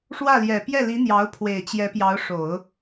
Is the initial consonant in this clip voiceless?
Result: yes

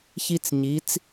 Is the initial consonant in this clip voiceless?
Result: yes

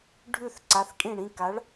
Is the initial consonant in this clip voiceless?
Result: no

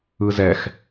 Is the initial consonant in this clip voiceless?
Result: no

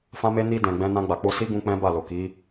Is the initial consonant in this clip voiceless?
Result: yes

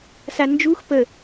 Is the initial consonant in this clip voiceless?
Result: yes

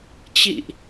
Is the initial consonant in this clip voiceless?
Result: yes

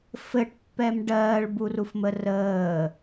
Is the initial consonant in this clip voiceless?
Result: yes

